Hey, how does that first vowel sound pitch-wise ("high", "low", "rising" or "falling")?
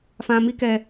low